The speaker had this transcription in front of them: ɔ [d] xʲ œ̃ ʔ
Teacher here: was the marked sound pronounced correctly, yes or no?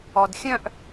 yes